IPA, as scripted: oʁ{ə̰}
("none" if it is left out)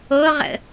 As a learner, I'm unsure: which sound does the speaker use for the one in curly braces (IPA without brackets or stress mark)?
ə̰